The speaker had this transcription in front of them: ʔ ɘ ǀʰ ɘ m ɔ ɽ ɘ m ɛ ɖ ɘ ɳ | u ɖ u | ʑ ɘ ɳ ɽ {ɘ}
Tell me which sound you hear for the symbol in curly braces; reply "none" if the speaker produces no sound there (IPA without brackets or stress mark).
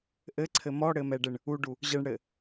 ɘ